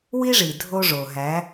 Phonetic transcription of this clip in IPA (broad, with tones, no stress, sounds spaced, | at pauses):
w i˦ ʐ i˨ dʱ o˦ ʐ o˨ ɦ æ˨˦